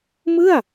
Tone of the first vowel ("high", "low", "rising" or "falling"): falling